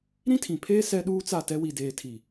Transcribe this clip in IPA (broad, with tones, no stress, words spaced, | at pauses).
ɾĩ˦tʰĩ˨pʰeː˦ sɛ˦ɗuː˦t͡sa˦˨tɛ˦ wi˨deː˨tʰi˨